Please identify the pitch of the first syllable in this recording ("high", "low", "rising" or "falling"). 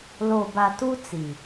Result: low